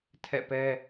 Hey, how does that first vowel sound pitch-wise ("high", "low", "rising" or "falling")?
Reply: falling